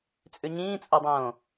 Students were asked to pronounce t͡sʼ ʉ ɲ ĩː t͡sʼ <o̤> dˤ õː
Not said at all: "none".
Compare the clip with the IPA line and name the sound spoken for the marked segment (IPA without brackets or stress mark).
o